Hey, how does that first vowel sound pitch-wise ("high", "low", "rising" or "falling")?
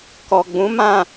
low